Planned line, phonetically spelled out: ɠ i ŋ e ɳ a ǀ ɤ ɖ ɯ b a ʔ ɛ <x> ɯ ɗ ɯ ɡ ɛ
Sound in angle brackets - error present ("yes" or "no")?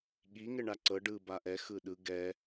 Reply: no